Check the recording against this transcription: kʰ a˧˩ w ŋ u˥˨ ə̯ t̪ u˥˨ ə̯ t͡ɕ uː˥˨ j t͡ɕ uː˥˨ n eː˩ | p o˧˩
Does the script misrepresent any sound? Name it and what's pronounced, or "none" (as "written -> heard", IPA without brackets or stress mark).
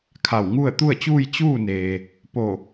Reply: none